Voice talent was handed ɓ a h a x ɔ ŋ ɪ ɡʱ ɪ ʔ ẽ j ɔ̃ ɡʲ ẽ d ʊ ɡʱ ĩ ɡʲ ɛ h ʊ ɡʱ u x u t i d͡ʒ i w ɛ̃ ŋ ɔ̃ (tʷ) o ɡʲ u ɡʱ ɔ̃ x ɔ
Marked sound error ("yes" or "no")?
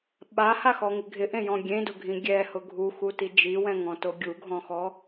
yes